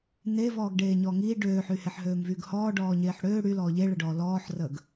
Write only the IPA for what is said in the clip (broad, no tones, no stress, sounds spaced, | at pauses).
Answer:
n e v ɔː ɡ ɖ eː ɲ ɔ ŋ i ɖ øː ħ y h e ħ ɦ øː m v yː ɡ h ɔː ɖ ɔː ɲ eː ħ ɽ øː ɽ y l ɔː ʎ e ɭ ə ɖ ɔː l ɔː ħ r əː ɡ